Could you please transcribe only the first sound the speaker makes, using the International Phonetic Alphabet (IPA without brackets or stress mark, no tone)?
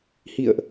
h